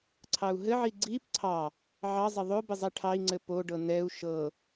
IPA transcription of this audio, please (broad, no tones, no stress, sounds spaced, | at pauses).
ǀʰ ɑ u̯ ɦ ɘ ʕ i ɡ͡ǀ i p ǀʰ ɑ | ʕ ɑ zˤ ɘ ðˤ o b ɘ zˤ ɛ ʈʰ ɑ i̯ ŋ͡ǀ ɘ p o ɖ ɤ n ɛ u̯ ʃ ɤ